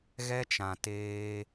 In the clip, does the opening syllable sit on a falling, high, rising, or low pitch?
high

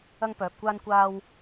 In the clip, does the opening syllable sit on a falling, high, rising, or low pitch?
high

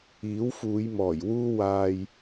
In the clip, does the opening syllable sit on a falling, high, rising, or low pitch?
rising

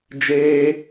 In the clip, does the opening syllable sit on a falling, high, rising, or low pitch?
high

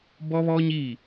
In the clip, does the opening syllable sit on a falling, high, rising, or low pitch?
high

